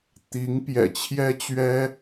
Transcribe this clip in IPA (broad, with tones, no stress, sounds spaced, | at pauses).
t̪ i˧˥ ŋ p j ɛ̰˨˩ t͡ɕʰ j ɛ˥ t͡ɕ ɥ ɛ˥